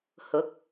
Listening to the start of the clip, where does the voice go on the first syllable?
rising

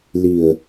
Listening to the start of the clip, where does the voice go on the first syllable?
low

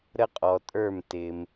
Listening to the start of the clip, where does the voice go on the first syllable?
high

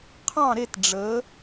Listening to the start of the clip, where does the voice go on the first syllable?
falling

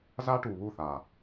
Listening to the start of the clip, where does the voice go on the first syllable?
high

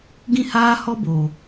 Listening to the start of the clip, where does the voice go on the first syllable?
high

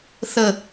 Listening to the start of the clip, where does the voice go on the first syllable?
falling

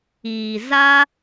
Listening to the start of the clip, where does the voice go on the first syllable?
low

